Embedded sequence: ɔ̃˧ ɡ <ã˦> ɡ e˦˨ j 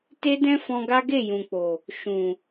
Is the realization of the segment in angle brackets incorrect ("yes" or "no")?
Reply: yes